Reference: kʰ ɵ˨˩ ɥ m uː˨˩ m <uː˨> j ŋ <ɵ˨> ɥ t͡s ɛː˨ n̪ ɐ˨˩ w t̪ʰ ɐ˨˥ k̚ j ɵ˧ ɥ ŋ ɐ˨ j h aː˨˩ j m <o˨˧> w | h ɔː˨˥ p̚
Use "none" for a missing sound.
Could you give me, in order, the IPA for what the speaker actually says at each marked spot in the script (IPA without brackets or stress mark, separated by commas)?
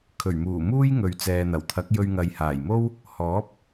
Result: uː˥, ɵ˨, o˥